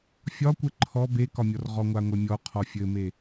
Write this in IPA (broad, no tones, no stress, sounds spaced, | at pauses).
fʲ ɒ kʷ ɘ ǃʰ ɔ b e k ɒ mʲ ɔ r ʁ ɔ ŋʷ a ŋʷ e mʲ ɔ qʰ ɔ fʲ ɘ m e